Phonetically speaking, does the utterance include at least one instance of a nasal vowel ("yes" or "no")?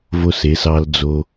no